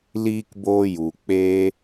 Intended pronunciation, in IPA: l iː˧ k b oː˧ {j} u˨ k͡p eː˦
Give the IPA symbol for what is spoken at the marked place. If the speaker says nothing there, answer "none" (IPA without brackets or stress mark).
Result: j